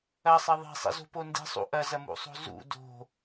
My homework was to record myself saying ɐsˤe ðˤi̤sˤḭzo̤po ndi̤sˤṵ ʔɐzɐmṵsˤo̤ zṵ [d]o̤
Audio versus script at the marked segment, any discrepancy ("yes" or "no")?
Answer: no